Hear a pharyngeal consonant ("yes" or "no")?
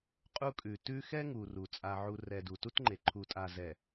yes